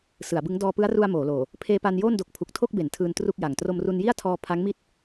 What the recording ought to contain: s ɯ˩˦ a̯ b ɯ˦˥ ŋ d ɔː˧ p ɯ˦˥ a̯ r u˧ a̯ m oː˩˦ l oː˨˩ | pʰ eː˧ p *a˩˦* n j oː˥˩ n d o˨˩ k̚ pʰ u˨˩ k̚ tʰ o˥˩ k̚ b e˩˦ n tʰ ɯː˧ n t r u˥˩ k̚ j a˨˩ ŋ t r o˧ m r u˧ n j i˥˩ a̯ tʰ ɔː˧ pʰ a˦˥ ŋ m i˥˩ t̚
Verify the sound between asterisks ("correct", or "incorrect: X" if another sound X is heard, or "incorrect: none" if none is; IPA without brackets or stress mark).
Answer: incorrect: a˧